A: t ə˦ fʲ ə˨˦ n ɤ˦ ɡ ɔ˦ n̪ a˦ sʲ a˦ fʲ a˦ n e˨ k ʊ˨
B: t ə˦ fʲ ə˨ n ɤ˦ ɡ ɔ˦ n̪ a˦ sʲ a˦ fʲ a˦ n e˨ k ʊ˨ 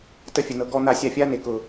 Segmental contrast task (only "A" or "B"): A